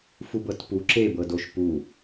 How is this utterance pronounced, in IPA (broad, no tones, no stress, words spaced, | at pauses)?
fubɤtpu ǁebɤdoʃ pu